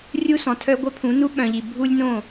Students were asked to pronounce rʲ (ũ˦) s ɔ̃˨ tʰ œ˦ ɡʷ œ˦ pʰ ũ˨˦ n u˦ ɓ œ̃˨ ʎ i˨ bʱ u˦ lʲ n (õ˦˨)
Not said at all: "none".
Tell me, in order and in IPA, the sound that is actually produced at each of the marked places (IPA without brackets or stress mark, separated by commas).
u˦, õ˦˨